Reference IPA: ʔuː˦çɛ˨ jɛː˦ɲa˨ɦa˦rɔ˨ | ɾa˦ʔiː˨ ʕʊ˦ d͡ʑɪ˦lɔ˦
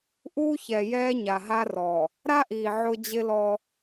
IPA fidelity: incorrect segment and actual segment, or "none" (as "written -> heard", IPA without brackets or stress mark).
none